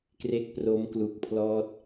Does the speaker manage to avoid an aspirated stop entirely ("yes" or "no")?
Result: no